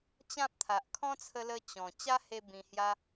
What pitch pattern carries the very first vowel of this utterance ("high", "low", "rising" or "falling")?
high